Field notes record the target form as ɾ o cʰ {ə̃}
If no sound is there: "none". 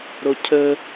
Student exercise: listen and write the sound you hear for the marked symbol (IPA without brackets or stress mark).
ə